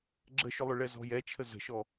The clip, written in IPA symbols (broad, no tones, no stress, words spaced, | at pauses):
ɡ͡ǁəʃʏlˠʏ ɭɛzɔ̤jɛt͡ʃʰə zə̤ʃɔ